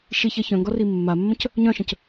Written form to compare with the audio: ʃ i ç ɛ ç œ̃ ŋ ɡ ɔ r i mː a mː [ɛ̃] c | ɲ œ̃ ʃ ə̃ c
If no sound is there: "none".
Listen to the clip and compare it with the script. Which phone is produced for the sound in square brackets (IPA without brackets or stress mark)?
ə̃